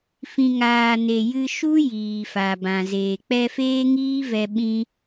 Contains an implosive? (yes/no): yes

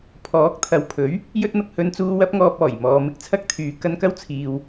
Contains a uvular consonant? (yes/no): no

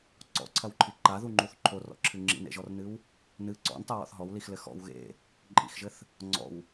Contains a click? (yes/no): yes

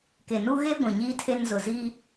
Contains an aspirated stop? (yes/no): yes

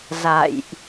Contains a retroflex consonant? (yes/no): no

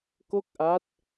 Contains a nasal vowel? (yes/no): no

